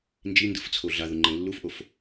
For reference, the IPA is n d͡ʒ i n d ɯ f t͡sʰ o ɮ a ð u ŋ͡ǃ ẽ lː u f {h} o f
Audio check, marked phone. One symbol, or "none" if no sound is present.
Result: ʔ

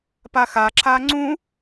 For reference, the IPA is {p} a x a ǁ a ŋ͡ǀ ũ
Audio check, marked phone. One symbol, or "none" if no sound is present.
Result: p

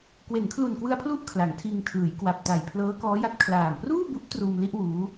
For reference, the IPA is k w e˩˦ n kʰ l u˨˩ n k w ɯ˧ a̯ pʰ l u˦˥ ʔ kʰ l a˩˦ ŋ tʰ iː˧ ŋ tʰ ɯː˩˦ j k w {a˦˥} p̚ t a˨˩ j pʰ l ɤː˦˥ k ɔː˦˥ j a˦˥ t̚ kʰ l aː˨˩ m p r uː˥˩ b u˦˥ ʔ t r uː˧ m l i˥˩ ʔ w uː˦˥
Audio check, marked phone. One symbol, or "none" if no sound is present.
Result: a˨˩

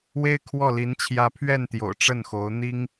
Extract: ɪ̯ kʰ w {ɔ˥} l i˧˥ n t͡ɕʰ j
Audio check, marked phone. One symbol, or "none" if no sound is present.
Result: ɔ˥˩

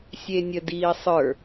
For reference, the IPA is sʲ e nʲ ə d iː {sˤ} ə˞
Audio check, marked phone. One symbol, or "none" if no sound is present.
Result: sˤ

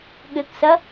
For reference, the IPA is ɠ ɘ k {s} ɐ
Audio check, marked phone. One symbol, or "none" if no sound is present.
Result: s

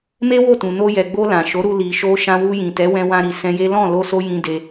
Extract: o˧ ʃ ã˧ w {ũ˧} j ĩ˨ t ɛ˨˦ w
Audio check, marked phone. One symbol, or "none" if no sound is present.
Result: u˧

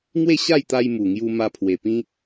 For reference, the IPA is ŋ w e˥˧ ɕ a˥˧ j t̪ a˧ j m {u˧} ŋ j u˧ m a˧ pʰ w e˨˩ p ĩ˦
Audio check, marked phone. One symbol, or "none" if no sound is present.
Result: u˨˩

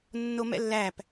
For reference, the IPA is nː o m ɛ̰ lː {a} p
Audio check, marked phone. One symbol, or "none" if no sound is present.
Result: æ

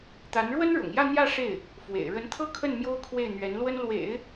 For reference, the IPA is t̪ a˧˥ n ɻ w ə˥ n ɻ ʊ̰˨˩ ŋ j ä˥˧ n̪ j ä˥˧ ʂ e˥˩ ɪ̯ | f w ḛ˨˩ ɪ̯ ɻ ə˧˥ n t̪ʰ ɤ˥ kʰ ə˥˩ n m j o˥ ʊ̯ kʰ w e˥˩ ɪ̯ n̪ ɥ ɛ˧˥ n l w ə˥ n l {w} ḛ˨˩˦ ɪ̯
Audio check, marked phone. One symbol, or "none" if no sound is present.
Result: w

